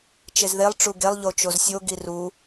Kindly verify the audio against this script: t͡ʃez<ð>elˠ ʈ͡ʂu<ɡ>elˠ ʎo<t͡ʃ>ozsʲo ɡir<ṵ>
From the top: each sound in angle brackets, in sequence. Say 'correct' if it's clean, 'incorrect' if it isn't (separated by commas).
correct, correct, correct, incorrect